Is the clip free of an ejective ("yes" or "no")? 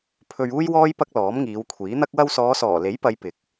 yes